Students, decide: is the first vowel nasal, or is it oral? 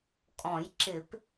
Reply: nasal